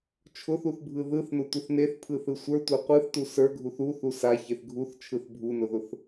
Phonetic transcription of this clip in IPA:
t͡ʃʰ ʊ θ u θ bʱ ɯ ð ɯ θ n ʊ tʷ ɯ θ n e θ pʰ ɯ θ ɯ sʷ ə˞ tʷ ə˞ qʷ ɯ θ t u s ə˞ ɡʱ u θ u θ u s a ç e θ ɡʱ u θ t͡ʃʰ ɯ θ bʱ u n ʊ ð ʊ θ

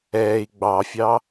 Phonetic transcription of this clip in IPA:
ɛː i̯ ɡ͡b ɑ fʲ ɑ

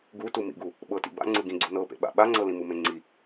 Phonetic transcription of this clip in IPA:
ɡ u t u m ḭ ɡ u | ɓ ɤ t ḭ b a̰ ŋ͡ǀ ɯ ɡ ĩ ɡ͡ǀ u n ɤ p ḛ ɓ a̰ ɓ a ŋ͡ǀ ɤ l ĩ m u m ẽ ŋ͡ǀ i

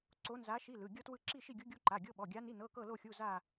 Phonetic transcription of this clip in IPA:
ǀ o˧˥ n z a˧˥ ʃ i˧˥˧ l ɯ˩˧˩ ɡʲ ɤ˥ t w ɯ˥˧ ǁ i˥˧ ʃ i˥˧ ɡʲ u˧˥ ɡʲ u˧˥˧ ǃ a˩˧˩ ɡʲ ɤ˧˥˧ ɓ ɔ˩˧˩ ɡʲ a˧˥ n i˧˥˧ n ɤ˧˥˧ k ɤ˥˧ l o˥˧ xʲ u˧˥˧ z a˥˧

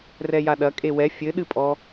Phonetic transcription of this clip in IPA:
r ɛ j a ɗ ɐ kʼ e w ɛ fʲ ɘ ɗ ɨ pʼ ɔ

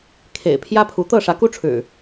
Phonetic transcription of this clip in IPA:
kʰ ḛ˨˩ ɪ̯ pʰ j ä˦ pʰ u˨˦ t̪ ɤ˥˨ ʂ ä˨˦ k u˦ ʈ͡ʂʰ ɻ̩˨˩

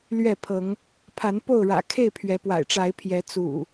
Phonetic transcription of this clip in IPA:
l ɥ ɛ˥˨ pʰ ɤ˨˦ ŋ | pʰ a˨˦ n p o˥˨ ʊ̯ ɻ ä̰˨˩ kʰ e˥˨ ɪ̯ pʰ ɥ ɛ˨˦ p w a̰˨˩ ɪ̯ ʈ͡ʂ a˨˦ ɪ̯ pʰ j ɛ˨˦ t͡s ṵ˨˩

